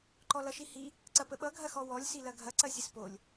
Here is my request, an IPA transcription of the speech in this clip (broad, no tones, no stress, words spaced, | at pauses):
ǃɔlʌʃihi | ǀɐpəɓʌ ɡʱɐxɔwɔlʲ silɐɡʱɐ ǀɐsʲəspolʲ